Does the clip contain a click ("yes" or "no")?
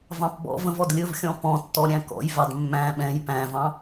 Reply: no